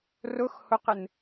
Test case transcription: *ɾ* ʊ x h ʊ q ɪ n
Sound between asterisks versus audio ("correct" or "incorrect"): incorrect